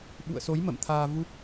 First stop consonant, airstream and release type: implosive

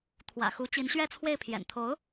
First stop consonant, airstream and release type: aspirated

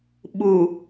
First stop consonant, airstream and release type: implosive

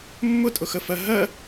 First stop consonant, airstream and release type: ejective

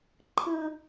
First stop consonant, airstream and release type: click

